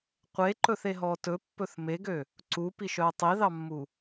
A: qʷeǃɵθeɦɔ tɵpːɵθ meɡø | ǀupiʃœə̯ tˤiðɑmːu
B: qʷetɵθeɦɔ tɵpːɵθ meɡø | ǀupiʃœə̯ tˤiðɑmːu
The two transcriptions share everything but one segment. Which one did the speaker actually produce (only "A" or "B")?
A